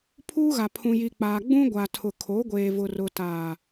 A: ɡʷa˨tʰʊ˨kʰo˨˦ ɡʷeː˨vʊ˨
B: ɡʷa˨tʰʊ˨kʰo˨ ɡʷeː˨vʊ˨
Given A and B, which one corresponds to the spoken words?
A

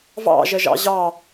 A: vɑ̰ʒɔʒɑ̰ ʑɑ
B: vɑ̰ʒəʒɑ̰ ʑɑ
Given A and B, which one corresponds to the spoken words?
B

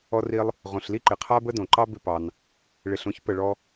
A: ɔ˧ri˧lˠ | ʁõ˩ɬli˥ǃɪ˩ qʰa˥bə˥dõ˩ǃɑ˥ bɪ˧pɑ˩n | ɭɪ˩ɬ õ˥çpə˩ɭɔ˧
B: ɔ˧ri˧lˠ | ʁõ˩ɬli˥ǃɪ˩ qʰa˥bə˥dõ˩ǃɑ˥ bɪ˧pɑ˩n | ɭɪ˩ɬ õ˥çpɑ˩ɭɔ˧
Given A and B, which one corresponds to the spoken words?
A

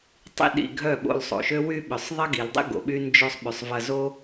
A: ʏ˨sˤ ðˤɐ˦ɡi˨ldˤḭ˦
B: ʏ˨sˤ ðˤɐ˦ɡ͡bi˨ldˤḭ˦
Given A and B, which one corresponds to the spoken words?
A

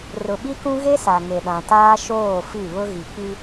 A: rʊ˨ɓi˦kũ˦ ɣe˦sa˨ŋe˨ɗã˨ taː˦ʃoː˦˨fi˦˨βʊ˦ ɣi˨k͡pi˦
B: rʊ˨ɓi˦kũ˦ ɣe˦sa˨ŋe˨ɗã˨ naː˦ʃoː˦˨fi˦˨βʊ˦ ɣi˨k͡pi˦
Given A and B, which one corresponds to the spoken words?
A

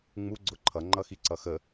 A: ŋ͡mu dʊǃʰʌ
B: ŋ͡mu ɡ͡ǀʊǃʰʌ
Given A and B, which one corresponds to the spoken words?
B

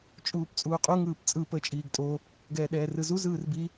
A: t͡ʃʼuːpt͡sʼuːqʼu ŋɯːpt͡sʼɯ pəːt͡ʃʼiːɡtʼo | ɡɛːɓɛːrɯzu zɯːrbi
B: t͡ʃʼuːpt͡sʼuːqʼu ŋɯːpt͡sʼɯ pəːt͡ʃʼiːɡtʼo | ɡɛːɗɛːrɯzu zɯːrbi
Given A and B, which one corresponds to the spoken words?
B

